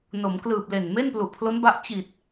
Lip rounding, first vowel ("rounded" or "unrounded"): rounded